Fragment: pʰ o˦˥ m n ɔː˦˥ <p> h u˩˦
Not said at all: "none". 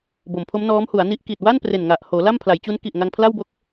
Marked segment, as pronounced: m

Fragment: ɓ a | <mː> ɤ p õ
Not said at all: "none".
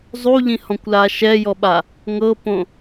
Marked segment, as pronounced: ŋ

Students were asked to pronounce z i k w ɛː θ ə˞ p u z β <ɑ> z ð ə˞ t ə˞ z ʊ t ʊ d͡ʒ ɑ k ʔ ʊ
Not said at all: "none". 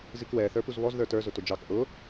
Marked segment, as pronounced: ɔ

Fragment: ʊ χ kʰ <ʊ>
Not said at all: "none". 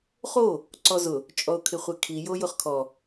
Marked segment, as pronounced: ɔ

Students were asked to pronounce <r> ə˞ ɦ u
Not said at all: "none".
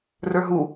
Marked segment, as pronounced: r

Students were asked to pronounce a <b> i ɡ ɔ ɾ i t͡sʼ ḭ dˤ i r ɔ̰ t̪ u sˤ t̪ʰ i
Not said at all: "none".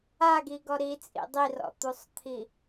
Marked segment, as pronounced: ɡ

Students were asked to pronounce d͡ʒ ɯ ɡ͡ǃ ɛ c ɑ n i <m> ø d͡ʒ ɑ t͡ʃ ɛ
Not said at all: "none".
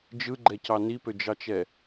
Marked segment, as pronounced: p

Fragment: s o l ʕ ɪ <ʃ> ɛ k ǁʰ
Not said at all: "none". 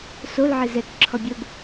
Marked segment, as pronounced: z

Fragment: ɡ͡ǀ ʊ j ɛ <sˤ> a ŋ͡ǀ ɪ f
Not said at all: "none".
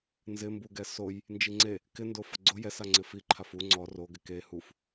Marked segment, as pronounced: s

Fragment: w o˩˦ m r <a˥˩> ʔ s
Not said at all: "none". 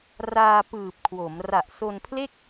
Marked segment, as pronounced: a˨˩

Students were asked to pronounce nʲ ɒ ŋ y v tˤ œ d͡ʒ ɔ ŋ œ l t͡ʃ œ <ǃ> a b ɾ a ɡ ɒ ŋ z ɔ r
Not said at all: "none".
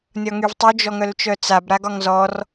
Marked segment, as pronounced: t͡s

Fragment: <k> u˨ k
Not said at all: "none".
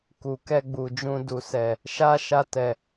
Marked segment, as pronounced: k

